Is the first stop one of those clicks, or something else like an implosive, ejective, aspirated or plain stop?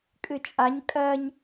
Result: ejective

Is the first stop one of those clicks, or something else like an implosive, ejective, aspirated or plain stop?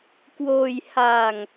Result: plain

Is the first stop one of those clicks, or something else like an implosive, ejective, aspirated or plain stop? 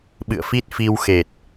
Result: implosive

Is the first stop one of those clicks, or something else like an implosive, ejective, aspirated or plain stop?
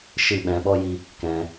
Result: implosive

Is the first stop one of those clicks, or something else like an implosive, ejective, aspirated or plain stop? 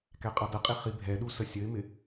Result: plain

